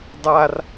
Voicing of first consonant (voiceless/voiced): voiced